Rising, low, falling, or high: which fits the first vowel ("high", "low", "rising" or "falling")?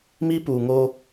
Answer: high